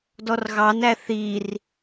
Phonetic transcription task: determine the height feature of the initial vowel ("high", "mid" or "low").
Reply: mid